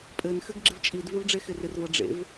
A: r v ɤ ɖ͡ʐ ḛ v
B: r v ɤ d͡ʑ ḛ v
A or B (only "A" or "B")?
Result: A